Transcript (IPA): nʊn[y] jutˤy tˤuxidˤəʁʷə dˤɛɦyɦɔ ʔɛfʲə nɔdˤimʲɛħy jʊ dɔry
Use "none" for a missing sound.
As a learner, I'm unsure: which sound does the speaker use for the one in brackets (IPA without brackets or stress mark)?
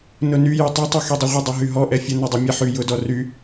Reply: y